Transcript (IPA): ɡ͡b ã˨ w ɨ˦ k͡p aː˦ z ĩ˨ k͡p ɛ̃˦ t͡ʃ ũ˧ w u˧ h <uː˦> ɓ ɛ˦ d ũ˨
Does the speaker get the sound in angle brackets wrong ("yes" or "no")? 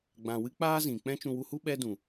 yes